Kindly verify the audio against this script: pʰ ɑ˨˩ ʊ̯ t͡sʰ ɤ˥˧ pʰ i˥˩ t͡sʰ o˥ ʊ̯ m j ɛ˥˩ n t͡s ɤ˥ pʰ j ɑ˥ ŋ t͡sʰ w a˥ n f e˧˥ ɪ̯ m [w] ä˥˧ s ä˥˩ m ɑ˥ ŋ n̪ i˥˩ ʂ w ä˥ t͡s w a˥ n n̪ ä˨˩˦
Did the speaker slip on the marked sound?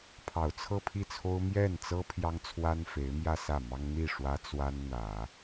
yes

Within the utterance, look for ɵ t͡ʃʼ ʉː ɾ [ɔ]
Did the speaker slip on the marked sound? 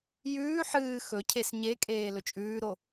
yes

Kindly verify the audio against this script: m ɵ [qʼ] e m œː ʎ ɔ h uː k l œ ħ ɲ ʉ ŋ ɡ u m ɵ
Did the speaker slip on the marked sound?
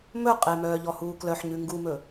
no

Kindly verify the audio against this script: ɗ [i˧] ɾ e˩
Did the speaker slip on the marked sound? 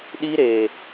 no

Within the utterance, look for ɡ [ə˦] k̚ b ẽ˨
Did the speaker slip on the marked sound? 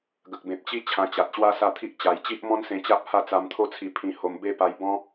yes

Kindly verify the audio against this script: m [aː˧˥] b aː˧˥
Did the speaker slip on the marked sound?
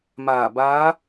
yes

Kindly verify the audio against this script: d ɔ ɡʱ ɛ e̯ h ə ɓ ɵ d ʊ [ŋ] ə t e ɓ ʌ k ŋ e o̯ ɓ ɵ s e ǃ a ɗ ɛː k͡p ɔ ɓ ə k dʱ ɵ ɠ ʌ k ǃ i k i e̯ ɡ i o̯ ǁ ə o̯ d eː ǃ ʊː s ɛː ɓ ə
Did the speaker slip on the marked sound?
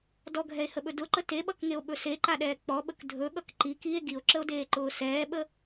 yes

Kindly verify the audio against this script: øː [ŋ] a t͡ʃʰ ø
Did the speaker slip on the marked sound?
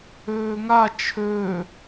no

